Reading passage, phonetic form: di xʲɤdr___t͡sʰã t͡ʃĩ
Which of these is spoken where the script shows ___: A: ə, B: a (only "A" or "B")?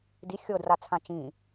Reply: B